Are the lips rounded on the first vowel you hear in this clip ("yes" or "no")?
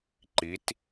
no